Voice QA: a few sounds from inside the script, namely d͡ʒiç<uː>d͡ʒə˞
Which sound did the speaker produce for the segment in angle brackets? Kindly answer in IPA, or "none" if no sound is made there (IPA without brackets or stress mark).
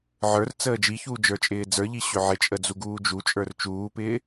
uː